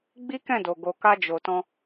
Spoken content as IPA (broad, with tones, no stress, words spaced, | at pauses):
ɡ͡bi˦kɛ̃˦˨do˨ ɡo˨ka˧ d͡ʒo˨tɔ̃˧